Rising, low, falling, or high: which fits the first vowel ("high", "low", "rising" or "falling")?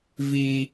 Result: high